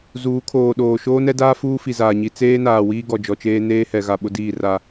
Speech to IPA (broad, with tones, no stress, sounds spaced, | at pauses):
z uː˨˦ kʰ oː˨ ɗ oː˨ ʃ oː˦ n ɛ˦ d aː˦ f uː˦ f i˨ z aː˨ ɲ i˨ t͡s eː˦ n aː˨ w iː˦ ɡ ɔ˨ d͡ʒ ɔ˨ t͡ʃ eː˦ n eː˦ h ɛ˨ ɣ a˨ ɓ ʊ˦ d iː˦˨ r a˦